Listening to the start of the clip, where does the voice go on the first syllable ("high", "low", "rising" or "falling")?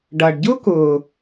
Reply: low